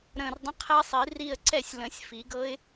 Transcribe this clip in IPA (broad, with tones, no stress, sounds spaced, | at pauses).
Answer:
ɾ ə̃ː˧˩ r dˤ ə̃˧˥˧ qʰ ɛ˦˥ sˤ i˨˩˦ r i˥˧ ə̯ ǀ ɛ˥˧ sʲ l ə̃˨˩˦ sʲ f i˨˩˦ ɡ ɤ˦˥ ɪ̯